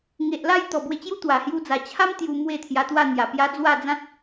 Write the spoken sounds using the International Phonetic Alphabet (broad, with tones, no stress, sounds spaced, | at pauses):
ŋ e˨ ʔ l a˥˧ j t̪ ɔ˨˩ b w e˧ t͡ɕ j u˦ t̪ w a˨˩ h j u˧ d͡z a˨˩ t͡ɕʰ a˦ m t̪ j u˧ m w e˥˧ t̪ʰ j a˧ t̪ w a˥˧ n̪ j a˨˩ p j a˦ d͡z w a˥˧ d͡z ã˦ t̚